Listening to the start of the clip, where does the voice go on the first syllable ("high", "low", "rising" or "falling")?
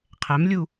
rising